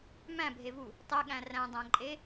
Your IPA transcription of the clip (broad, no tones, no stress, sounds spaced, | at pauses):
m æ̃ bʱ e v u | tˤ e ɠ æ̃ r æ̃ dˤ æ̃ ǃʼ e